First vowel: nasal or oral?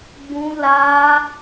nasal